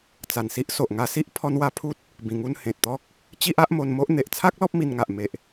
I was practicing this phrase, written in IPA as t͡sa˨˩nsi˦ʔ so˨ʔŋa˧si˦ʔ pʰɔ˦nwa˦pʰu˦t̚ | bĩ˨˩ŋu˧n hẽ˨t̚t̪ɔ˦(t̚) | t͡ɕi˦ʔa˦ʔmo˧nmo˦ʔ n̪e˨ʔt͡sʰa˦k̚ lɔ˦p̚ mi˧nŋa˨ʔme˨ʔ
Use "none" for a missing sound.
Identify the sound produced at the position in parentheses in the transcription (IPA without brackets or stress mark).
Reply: k̚